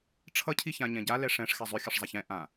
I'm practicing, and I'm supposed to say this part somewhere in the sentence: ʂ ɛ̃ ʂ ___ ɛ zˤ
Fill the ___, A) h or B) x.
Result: B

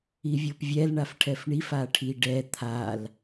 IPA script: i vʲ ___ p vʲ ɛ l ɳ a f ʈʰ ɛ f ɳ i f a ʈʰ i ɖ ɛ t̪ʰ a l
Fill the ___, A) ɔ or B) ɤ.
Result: B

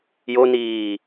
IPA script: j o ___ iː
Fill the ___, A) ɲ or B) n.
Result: B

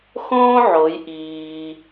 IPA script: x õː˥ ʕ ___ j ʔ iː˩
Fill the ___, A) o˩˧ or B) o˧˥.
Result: A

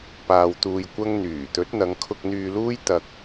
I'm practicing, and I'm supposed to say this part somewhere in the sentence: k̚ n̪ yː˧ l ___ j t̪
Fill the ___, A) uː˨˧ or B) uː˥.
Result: B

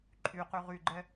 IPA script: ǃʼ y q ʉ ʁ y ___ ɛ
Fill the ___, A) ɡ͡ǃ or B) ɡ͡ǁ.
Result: A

